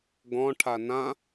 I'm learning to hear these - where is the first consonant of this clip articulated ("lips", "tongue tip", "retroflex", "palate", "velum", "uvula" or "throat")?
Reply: velum